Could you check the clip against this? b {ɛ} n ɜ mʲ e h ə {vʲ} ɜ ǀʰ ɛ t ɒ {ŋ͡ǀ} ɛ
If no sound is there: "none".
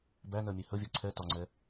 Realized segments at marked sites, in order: æ, vʲ, ŋ͡ǀ

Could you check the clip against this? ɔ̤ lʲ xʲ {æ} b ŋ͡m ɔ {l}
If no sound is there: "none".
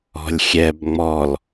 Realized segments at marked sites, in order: ɛ, l

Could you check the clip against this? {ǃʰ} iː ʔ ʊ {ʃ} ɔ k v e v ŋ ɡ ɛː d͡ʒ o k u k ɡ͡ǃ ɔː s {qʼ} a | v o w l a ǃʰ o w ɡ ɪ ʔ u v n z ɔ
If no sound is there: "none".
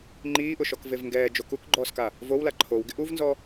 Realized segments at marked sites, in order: ŋ͡ǃ, ʃ, k

